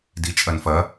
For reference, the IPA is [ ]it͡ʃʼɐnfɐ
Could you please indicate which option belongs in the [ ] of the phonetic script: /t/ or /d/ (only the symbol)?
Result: d